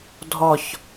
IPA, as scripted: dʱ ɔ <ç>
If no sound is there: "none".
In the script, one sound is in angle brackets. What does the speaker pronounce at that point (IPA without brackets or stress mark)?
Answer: ç